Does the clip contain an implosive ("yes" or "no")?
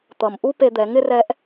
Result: no